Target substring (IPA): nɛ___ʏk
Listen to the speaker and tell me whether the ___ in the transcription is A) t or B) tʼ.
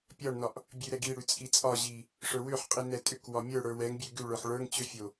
B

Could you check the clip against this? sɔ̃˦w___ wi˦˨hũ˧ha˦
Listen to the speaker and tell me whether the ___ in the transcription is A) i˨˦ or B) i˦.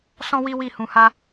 B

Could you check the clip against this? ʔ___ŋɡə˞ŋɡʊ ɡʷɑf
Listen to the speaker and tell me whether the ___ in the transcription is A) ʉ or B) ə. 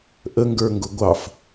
B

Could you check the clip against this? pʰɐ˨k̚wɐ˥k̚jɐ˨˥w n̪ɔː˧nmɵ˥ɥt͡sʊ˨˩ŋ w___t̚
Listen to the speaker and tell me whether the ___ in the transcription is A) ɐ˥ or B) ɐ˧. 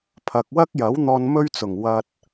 B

